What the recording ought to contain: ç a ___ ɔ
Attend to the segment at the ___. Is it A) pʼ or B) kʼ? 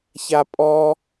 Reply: A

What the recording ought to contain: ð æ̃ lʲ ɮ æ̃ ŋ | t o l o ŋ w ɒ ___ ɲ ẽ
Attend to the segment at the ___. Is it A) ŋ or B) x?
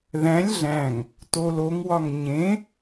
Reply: A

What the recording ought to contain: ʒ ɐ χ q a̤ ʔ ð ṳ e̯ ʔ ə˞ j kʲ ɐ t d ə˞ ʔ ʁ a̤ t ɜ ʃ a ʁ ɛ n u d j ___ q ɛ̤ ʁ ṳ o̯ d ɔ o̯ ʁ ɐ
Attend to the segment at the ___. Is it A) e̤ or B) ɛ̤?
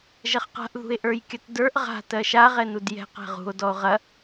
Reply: B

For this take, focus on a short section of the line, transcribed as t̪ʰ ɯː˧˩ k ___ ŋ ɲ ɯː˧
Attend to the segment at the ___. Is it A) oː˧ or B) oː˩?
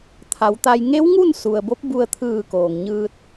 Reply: B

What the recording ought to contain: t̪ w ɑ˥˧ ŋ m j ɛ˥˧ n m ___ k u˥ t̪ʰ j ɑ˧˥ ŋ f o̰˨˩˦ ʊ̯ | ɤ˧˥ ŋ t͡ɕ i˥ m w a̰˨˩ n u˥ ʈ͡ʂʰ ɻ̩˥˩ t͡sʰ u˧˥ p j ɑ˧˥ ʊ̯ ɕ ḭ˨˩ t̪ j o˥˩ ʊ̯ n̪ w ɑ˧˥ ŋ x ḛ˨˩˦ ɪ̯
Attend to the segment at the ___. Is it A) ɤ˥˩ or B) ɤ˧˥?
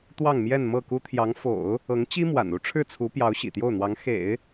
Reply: A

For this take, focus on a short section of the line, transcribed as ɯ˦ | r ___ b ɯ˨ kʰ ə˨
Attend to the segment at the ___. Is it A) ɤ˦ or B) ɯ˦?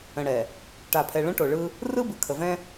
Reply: B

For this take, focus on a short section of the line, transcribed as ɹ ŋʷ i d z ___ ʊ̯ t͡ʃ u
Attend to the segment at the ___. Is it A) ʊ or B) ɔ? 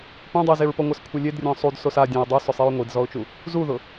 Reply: B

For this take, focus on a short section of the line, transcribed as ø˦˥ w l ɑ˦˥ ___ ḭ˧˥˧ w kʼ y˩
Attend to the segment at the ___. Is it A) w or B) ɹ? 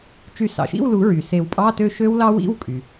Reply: A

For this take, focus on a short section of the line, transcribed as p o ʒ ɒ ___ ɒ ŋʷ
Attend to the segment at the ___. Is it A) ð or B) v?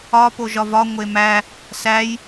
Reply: B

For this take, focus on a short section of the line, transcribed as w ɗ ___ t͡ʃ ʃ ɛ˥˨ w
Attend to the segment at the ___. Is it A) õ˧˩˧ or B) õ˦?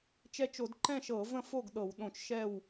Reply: A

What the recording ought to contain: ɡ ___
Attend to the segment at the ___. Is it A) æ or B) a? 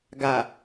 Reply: B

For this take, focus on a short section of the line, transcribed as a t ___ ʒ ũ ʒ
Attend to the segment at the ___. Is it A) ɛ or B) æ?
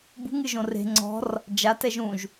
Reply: A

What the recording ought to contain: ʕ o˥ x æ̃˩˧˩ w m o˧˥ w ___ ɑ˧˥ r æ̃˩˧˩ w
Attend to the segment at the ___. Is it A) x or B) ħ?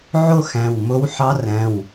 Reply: B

